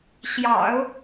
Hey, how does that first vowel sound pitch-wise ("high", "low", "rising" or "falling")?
low